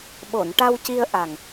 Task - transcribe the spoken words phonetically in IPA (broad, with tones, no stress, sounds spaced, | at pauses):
ɓ o˨˩˨ n ʈ a˧ w c i˧ ə̯ ʔ a˨˩ ŋ